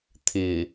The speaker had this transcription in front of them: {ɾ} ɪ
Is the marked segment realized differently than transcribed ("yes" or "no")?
yes